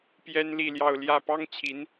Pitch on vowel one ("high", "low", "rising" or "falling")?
high